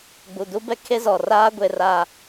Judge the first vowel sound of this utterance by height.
high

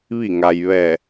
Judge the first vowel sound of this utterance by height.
high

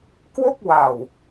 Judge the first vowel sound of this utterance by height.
mid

